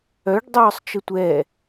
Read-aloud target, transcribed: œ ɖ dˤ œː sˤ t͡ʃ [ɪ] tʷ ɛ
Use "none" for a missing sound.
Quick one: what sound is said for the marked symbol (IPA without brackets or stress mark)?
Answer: ə